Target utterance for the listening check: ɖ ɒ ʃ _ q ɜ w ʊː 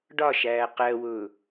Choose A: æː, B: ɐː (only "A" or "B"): A